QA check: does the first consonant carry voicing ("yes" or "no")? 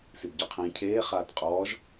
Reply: no